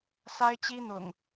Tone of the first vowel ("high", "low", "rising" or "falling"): high